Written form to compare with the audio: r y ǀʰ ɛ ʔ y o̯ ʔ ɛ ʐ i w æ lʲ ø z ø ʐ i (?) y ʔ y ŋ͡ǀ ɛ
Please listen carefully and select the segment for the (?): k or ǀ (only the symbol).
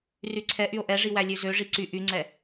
ǀ